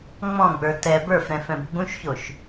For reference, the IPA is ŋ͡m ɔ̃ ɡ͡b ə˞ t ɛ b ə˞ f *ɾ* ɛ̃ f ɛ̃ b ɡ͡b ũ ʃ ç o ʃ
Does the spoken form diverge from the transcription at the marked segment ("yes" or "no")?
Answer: no